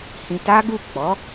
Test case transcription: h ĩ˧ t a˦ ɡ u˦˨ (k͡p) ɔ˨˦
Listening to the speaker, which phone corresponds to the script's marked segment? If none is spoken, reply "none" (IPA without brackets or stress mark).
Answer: k͡p